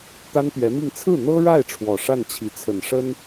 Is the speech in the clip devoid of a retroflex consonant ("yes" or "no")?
no